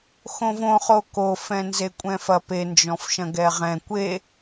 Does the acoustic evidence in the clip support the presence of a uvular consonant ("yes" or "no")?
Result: yes